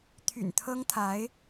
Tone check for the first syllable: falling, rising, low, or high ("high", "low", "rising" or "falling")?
low